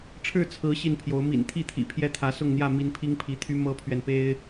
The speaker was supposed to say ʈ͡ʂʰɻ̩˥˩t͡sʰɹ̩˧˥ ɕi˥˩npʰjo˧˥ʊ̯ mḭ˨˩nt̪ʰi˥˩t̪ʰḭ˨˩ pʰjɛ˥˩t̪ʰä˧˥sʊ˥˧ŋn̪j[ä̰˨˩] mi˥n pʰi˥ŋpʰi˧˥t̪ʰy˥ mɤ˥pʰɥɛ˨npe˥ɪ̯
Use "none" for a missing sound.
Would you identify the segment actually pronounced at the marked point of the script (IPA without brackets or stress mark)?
ä˥˩